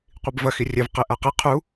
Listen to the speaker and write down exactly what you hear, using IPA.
qʷibvɐ xirʲɛv qeʔaqi qʰu

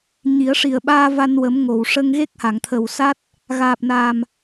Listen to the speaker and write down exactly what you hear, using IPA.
ɲi˨˩˦ə̯ʂi˨˩ə̯ ɓaː˧ va˧nwə˨˩˦m ŋo˨˩˨w ʂə˧ŋ ɣe˦˥k̚ha˨˩˨ŋt̪ʰə˨˩wsa˦˥t̚ | ɣaː˨˩p̚na˨˩m

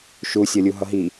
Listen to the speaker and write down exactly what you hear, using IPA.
ʃusʲʌlʲu ɦʌɦi

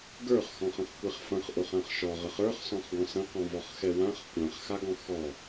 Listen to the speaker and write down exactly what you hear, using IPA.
ɡə˞χxɔ̃χə̃χkʷɛχ fɐ̃χʔʊχãχ ʃɔʁəχ ə˞χsɔ̃χɡɔ̃ sɐ̃qɔ̃vɔχxɛ wãχ kʷãχxaɡɔ̃ xɔ

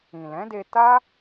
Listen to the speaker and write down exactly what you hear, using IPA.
ĩ˨lɛ̃˨˦de˧ ta˦

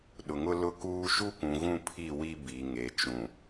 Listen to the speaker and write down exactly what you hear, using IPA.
ɗʊ˨ŋʊ˦ lʊ˦kuː˦ ʃu˦kʷũ˨ɣũ˦˨pʰi˦˨ wi˦ bi˨ ŋe˨t͡ʃũ˨

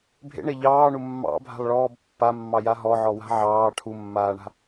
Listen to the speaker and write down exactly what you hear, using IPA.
bʱḛɳe ʎɑːɳu mːɑ̰bʱa̤lˠɭɔːb pːamːɑja ɦɔʕɔwa̤ ʕɑː ʈʰumːaːɳa̤

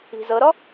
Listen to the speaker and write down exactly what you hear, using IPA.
i̤zɤɾɔ

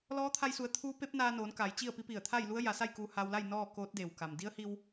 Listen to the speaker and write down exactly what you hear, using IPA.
lɔː˧˥t̪ʰa˧jsu˩˧ə̯ t̪ʰuː˧˥ pe˧˥p̚ naː˧noː˩˧n ka˩˧jt͡ɕi˥˨ə̯pi˧˥pi˧˩ə̯ t̪ʰa˥˨jlu˧˥ə̯ja˩˧sa˥˨j kuː˧haː˧wla˥˨j nɔː˥˨koː˧˥t̚de˩wka˩m di˧˥ə̯hi˧w

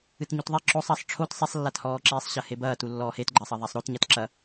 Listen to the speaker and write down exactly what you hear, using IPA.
ɨtɲutðˤe ǁosˤ ɐsˤ ʈ͡ʂʰot sˤesˤlːathɔːǁiːsˤ ɕɐhebɐːtu lːɔːhetɡ͡ǃɐːsˤɐ ðˤasˤɾot ɲatǁɐ

